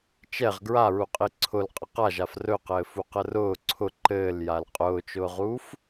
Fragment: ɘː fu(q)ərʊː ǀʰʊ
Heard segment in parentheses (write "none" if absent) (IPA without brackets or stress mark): q